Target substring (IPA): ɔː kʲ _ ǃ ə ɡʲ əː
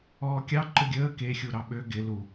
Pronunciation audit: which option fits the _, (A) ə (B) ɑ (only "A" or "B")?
B